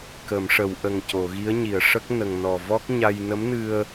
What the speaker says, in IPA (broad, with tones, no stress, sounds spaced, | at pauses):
k ə˨˩˨ m ʂ ə˨˩˨ w ʔ ə˨˩ ŋ c o˨˩˨ ɣ i˧˥ ə̯ ɲ i˨˩˨ ə̯ ʂ ə˦˥ k̚ n ə˨˩ ŋ n ɔ˨˩ v ɔ˦˥ k̚ ɲ a˧ j n ə˧˥ m n ɨ˧ ə̯